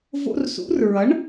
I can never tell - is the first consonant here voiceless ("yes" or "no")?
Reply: no